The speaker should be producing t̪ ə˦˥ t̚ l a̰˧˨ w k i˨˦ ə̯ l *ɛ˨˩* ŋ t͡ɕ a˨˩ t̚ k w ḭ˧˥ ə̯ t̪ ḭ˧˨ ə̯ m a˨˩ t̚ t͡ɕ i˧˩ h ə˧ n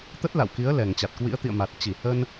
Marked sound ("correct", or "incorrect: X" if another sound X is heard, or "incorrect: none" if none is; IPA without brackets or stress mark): correct